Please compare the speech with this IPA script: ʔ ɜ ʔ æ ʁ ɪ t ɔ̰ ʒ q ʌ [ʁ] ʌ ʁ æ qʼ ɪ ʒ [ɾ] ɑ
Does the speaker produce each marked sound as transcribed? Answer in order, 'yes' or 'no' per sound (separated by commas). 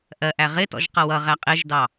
no, no